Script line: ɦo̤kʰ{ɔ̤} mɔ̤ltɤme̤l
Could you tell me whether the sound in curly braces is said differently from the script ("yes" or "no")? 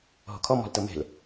yes